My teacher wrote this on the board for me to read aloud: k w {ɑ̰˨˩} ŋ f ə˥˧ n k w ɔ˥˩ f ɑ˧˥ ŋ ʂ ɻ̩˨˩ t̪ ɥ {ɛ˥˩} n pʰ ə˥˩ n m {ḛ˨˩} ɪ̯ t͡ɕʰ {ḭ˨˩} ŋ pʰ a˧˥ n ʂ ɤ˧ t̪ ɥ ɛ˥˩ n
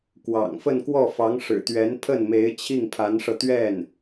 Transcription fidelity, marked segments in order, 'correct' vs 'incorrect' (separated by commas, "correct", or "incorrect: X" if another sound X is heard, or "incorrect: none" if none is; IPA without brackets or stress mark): correct, incorrect: ɛ˧˥, incorrect: e˧˥, incorrect: i˥˩